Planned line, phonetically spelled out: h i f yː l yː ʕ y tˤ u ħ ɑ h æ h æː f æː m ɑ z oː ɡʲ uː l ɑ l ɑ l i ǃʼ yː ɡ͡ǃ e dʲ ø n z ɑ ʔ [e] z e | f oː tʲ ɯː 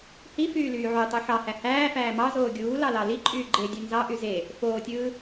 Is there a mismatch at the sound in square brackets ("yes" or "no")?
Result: yes